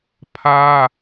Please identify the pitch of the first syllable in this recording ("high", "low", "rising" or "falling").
high